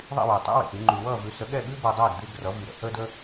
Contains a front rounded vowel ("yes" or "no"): yes